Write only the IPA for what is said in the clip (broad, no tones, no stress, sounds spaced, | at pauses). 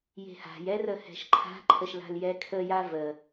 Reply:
j e̤ h a̤ j ɛ r ə h ɛ̤ ʃ ǃʰ a̤ ǃʰ ə ʃ l a̤ l j ɛ kʰ ə j a v ə